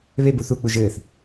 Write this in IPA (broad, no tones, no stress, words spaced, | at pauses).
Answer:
βeb uθuk͡puʒ ɘːθ